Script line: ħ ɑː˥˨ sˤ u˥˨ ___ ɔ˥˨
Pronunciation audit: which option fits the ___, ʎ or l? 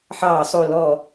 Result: l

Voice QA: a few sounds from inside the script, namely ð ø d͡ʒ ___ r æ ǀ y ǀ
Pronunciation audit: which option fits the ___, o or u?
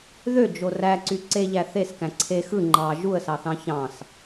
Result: o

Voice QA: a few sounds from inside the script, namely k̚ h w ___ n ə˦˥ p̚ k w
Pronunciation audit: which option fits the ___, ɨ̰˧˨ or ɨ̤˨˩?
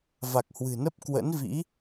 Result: ɨ̤˨˩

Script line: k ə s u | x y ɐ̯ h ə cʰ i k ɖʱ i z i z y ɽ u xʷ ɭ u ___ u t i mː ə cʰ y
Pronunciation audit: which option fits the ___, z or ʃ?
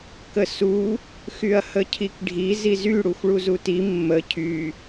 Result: z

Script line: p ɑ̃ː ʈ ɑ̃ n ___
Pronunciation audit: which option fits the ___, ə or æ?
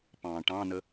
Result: ə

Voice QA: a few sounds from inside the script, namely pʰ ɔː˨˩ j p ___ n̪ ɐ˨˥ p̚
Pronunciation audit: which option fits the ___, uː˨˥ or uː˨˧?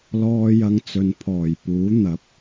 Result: uː˨˥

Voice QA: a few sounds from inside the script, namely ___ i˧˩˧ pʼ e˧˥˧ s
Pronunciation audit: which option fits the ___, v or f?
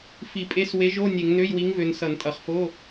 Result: f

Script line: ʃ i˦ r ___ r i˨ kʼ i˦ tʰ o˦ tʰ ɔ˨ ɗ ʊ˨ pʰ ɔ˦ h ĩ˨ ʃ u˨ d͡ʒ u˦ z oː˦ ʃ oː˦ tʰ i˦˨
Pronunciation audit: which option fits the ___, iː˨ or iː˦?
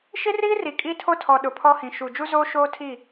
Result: iː˦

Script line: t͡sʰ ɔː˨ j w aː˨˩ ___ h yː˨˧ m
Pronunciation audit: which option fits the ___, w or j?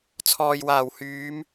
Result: w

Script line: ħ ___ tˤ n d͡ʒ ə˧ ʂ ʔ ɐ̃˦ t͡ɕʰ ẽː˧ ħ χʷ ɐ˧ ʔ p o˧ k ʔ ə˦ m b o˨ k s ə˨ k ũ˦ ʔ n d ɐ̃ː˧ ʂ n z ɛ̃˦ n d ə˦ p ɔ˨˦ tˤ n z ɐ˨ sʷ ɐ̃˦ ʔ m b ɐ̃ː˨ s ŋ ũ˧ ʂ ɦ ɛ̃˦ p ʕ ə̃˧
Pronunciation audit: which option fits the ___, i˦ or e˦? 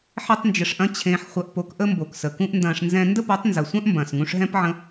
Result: e˦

